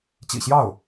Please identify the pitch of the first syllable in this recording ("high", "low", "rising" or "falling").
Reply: low